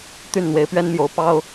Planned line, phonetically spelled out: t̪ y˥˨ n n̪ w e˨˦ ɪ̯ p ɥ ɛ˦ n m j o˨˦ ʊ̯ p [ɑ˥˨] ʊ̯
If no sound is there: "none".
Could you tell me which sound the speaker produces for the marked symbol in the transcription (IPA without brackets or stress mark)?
ɑ˦